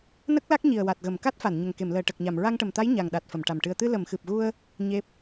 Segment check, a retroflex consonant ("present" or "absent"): present